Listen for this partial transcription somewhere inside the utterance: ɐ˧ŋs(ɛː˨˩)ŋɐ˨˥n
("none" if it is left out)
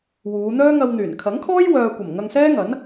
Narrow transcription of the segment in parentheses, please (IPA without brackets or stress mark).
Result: ɛː˥